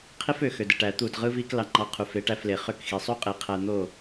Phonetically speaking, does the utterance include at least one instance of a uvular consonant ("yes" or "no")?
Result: yes